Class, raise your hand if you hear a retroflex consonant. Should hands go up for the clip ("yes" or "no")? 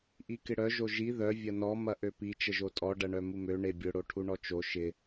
yes